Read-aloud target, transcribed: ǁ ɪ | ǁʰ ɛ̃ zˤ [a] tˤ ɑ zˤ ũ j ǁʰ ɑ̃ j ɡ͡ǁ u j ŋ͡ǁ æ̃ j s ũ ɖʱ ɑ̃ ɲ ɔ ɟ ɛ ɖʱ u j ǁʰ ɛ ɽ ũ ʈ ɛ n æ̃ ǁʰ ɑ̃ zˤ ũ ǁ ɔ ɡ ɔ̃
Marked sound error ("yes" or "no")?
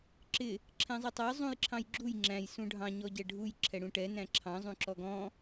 yes